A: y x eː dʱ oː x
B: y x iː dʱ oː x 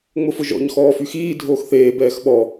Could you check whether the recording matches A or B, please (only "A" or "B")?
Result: B